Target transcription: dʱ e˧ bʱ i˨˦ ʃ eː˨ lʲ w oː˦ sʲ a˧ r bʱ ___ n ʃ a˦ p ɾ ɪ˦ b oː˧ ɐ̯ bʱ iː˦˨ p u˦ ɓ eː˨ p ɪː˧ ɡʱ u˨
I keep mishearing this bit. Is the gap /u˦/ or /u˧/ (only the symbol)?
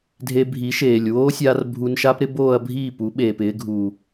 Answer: u˧